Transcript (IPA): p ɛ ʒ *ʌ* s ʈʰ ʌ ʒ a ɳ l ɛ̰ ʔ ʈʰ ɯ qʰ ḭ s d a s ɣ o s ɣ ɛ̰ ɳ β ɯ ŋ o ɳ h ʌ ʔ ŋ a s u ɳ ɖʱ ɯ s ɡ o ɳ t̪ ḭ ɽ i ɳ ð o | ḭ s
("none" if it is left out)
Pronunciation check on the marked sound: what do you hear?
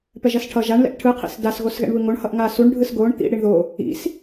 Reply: ʌ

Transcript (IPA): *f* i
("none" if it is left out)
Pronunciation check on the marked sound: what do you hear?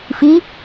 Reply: f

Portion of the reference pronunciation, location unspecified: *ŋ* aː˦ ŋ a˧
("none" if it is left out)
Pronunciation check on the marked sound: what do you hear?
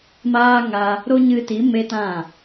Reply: m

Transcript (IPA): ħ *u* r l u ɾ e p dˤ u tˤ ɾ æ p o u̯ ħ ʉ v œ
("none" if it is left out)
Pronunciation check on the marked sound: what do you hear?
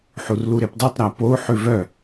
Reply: u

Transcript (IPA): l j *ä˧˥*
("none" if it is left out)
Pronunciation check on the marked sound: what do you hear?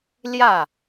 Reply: ä˥˩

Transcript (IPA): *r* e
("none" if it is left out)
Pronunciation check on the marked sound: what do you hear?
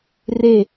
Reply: r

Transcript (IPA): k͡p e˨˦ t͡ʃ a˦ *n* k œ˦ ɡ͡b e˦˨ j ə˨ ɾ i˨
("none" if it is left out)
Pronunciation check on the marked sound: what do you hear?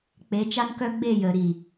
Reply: n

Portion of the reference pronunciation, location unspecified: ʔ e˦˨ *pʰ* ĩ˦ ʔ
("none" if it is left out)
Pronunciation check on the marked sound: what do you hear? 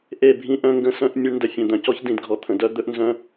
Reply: bʱ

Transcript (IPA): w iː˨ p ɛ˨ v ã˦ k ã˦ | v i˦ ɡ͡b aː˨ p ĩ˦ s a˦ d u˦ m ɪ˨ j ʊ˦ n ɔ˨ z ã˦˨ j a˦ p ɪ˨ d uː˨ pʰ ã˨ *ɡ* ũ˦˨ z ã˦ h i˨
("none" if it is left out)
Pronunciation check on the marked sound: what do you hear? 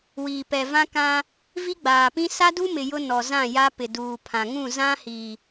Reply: ŋ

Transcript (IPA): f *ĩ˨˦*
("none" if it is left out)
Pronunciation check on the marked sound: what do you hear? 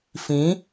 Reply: ĩ˨˦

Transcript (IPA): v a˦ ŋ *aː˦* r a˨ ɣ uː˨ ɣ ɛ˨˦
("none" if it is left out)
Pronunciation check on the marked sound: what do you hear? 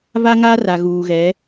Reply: aː˦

